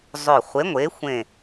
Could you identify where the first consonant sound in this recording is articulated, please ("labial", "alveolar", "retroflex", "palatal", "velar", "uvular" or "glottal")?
alveolar